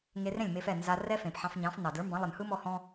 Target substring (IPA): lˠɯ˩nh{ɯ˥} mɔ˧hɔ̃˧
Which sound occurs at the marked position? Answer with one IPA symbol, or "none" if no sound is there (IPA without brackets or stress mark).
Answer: ɯ˥